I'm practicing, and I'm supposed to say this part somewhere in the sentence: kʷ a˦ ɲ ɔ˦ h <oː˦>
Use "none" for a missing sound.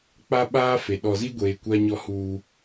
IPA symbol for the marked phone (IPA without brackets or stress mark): uː˦